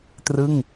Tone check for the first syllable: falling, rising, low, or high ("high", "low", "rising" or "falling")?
falling